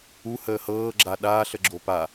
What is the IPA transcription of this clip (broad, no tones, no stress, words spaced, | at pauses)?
u həːhɤː ɡ͡ǁaɗaːɬ əɡ͡ǁopa